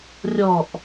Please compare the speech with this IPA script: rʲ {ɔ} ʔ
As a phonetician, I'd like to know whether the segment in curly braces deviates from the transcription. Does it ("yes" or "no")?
no